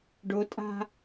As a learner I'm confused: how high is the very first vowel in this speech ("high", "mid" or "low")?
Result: mid